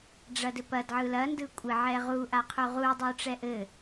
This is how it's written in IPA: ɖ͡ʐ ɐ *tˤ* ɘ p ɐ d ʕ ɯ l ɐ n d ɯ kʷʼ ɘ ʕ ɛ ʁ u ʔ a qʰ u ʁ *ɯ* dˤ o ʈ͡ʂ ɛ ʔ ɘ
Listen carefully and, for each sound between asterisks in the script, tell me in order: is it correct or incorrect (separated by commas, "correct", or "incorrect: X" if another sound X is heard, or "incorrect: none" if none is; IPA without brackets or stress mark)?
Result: incorrect: d, incorrect: u